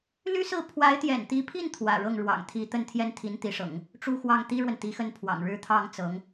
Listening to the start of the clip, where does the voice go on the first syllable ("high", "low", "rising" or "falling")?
high